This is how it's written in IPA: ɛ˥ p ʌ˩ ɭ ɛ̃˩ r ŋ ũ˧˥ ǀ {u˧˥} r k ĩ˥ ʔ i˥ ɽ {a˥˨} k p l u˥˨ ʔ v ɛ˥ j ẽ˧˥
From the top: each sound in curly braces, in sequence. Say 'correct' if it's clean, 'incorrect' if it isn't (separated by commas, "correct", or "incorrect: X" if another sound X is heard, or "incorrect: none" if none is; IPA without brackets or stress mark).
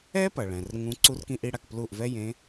incorrect: u˥, correct